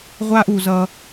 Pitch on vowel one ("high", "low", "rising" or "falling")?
high